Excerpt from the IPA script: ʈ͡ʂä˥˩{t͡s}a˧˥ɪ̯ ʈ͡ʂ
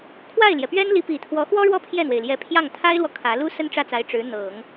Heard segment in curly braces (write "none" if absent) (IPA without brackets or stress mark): t͡s